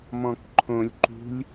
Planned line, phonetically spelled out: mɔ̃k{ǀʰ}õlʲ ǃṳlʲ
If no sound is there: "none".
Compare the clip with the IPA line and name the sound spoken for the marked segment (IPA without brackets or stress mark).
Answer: ǃʰ